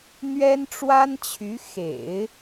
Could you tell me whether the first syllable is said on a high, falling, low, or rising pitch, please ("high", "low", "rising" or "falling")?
high